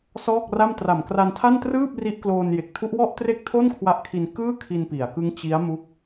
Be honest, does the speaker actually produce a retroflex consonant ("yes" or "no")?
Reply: no